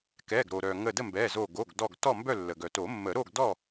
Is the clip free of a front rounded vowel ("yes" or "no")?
no